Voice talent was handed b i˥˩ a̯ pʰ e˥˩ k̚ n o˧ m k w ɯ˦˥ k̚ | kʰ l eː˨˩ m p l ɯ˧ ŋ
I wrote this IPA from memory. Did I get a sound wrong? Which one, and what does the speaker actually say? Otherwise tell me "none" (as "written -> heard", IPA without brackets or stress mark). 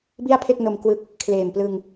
none